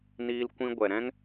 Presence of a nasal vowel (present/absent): present